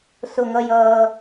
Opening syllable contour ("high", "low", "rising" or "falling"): low